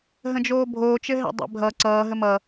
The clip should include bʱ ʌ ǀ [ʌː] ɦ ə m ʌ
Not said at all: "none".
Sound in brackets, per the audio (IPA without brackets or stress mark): ʌː